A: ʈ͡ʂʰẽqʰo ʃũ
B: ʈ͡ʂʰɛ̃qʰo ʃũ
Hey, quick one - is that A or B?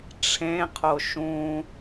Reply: A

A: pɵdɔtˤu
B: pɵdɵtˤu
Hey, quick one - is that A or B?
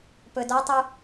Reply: A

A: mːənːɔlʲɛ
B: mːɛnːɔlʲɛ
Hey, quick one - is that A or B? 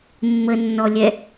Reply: A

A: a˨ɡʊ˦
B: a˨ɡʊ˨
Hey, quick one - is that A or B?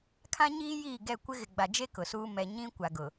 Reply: B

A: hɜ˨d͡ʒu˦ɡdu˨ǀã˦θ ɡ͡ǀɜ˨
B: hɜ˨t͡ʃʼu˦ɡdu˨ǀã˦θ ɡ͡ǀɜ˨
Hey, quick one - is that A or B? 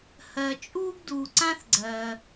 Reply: B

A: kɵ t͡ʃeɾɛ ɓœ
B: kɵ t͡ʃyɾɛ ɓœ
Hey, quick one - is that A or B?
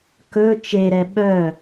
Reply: A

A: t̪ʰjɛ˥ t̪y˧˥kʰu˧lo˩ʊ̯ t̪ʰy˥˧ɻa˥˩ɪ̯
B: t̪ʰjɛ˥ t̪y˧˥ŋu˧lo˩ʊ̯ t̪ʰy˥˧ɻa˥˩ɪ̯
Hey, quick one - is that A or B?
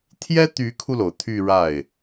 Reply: A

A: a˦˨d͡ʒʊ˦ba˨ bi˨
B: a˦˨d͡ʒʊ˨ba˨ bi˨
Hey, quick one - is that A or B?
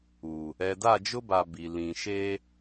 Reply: A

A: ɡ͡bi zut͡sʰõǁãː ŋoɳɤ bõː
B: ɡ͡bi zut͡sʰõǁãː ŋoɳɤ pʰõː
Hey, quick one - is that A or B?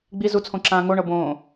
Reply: A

